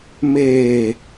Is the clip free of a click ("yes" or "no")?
yes